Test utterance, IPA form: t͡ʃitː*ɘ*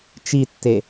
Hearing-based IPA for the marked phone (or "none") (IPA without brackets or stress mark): e